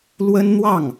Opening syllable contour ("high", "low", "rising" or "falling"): high